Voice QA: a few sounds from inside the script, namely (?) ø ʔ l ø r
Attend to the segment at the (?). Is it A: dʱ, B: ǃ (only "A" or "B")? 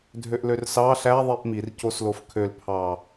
A